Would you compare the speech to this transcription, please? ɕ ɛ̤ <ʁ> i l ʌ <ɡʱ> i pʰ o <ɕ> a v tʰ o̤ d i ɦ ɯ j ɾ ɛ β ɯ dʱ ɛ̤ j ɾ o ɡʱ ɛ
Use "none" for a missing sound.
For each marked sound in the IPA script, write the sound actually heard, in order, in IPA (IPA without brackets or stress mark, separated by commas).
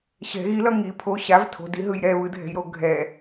ɣ, ŋ, ɕ